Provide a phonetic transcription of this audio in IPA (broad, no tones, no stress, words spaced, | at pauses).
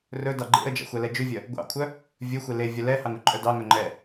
rɵdɑ ɡ͡ǃḛə̯d͡ʒɑ̰xʷ ɛlɛd͡ʒʉvʲœ | ɡʷɑ̰kʷʰœ | vʲɵxʷe le vʲœlɛhɑŋ ɵǃʼœdɑŋœ ŋ͡ǃɛ